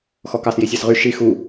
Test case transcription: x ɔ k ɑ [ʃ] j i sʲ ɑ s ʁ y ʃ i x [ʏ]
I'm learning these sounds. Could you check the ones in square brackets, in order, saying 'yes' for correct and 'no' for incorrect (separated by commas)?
no, no